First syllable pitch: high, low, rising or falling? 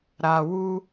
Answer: low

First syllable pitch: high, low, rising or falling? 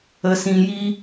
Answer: low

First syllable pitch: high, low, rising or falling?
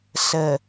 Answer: low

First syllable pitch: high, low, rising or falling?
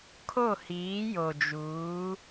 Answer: falling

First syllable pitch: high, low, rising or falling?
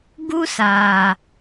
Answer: high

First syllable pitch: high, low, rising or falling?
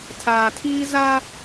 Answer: low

